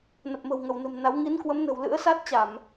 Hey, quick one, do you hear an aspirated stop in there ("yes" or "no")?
no